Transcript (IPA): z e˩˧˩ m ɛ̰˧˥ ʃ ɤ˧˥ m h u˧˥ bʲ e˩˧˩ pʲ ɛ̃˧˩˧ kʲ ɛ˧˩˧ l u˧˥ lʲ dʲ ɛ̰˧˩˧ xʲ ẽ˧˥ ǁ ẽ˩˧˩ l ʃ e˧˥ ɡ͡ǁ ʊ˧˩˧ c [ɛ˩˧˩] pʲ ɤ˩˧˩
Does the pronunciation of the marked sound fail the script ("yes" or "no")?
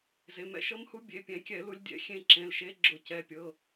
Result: no